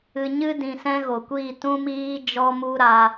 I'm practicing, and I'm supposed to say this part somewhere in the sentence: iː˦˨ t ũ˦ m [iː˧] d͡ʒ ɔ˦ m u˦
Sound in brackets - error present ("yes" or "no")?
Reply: yes